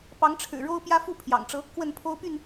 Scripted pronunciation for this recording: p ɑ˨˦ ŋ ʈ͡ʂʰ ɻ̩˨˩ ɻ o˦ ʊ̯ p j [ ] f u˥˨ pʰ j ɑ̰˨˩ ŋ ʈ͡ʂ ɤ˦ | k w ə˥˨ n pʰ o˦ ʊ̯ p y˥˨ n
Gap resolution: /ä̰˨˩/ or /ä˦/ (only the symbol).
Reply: ä˦